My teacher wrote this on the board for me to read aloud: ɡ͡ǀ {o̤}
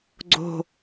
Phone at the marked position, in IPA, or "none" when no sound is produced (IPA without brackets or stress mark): o̤